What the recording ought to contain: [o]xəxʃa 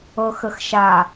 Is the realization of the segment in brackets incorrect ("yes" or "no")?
yes